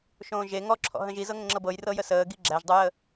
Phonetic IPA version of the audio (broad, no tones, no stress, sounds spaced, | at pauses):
ʃ õː ʒ e ŋ ɔ ǁʰ ɔ̰ ɦ ə̃ ʒ i z ɤ ŋ ə̃ ŋ͡ǁ ɤ b ɤ j r ɤ j ə s əː ɡ i ɡ͡ǁ æ ʒ dˤ u j ə